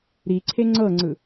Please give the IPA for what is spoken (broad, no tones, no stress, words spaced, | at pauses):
ɾiǀʰe ŋ͡ǀɤŋ͡ǀɯ